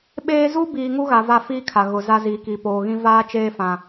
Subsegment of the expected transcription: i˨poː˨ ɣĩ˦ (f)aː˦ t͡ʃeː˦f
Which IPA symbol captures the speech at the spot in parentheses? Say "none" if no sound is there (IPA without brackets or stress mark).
v